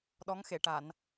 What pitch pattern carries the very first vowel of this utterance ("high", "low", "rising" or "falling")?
rising